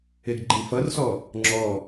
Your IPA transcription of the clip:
e ɡ ɡ͡ǃ ĩ f ʌ r s ɔ | ŋ͡ǁ ɔ

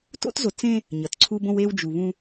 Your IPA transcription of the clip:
t o̰˦ t z o˨ t͡s ẽ˦ | ɲ ʌ˨ t ǀʰ u˦ b õ˦ w e˦ w d͡ʒ u˨ β ũ˦

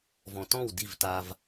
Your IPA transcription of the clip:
v ɔ̃˨ t ɔ̃˦˨ w d i˦˨ v t a˦ v

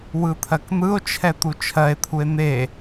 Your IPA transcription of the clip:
w ɯ t̪ʰ ɜ k n̪ ɯ o̯ t͡ʃʰ ɛ t̪ u t͡ʃʰ ɜ e̯ t̪ʰ u e̯ n̪ e

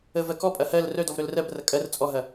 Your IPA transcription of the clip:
ə v ɜ k ɔ pʼ ɐ h ɜ l r œ d ɔ v ɾ œ l r ɜ b r ɐ kʼ ɜ r t͡sʼ ɔ ɦ ɐ

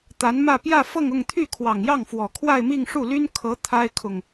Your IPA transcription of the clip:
t̪ a˧˥ n m ä˥˧ p j ä˥˧ f ɤ˥˧ ŋ ʊ˥˧ ŋ t̪ʰ y˥˩ kʰ w ɑ˨˩ ŋ j ɑ˥˩ ŋ f w ɔ˨˩ kʰ w a˥˧ ɪ̯ m i˥˧ ŋ ʂ u˥˩ l y˥ n kʰ ɤ˧˥ t̪ʰ a˥ ɪ̯ kʰ ʊ˨ ŋ

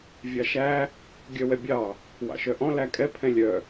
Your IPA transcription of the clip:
vʲ ɑ ʃ æ | ɡʲ œ w ɛ bʲ ɑ | w ɑ̰ ʃ œ ʔ ɔ̃ l æ kʼ ɛ pʰ ɛ̃ lʲ œ

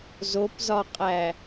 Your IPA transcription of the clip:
z o p z ɒ qʼ æ

